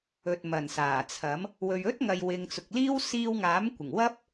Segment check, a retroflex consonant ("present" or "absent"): absent